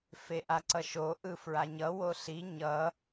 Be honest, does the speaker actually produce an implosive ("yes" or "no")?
no